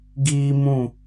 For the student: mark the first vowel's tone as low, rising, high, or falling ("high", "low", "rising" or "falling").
high